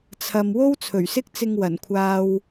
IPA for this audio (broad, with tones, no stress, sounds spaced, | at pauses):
t͡sʰ ɐ˨ m w o˥ w t͡sʰ ɵ˨˩ ɥ s ɪ˥ k̚ t͡s ɪ˧ ŋ w ɐ˨˩ n kʷʰ aː˧ w